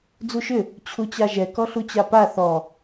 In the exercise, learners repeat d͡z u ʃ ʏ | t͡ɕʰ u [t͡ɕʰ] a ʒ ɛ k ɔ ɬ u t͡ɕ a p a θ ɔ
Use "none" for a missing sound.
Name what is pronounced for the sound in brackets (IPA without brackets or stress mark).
t͡ɕ